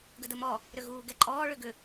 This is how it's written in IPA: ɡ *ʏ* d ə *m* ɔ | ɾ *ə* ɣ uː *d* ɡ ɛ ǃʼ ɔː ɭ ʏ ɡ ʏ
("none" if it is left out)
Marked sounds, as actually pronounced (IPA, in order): ə, m, ʏ, none

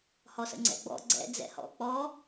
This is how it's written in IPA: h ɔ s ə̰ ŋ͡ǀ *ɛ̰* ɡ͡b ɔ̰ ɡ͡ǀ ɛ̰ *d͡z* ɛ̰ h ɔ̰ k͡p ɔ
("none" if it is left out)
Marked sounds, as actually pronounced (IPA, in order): ɛ̰, d͡z

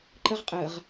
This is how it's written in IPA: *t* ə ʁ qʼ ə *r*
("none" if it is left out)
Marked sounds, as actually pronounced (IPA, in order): ǃ, ʁ

